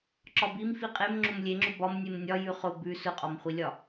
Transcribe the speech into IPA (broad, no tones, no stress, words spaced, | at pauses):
ǁɒbim fiqʼem ŋ͡ǁomlʲeŋ͡ǁʊ bɒm nʲemnʲɒ jʉχʊ bʉ sʊqʼɒmχʷilʲɒ